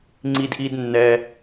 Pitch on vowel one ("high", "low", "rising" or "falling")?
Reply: low